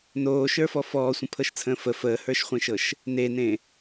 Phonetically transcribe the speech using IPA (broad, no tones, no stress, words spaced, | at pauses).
noːʃə˞fɔ fɔːsʷə̃pʰɤʃt͡sʰə̃ː fə fəːhə˞ʃχʷẽʃɤʃ | nenẽ